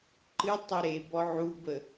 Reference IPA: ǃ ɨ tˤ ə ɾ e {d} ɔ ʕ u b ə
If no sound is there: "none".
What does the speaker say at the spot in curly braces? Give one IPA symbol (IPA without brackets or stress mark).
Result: b